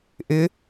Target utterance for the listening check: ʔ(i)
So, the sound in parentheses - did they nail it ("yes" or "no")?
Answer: no